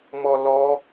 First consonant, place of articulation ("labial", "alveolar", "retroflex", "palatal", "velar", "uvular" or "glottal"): labial